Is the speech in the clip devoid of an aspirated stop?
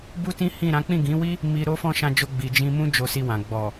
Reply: yes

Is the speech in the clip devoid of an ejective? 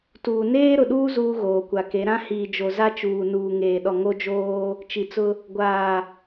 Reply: yes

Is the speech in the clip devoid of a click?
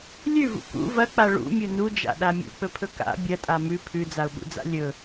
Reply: yes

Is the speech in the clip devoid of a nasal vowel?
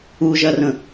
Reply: no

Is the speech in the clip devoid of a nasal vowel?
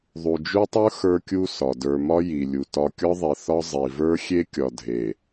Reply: yes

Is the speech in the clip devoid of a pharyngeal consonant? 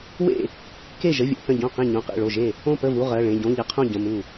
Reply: yes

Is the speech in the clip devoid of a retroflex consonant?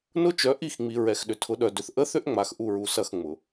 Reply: yes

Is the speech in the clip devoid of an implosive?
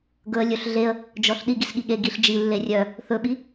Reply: no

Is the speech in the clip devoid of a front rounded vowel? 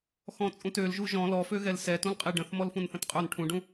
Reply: no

